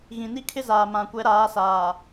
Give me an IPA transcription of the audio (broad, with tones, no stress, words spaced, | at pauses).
ɣĩ˨ni˦kʰɪ˦zaː˨ mã˨kʷɛ˨˦ɾaː˨˦saː˨